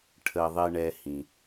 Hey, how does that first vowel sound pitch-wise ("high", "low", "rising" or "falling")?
low